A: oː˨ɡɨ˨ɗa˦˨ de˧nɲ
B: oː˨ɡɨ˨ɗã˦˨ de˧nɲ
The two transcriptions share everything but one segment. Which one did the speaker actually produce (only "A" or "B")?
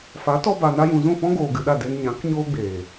A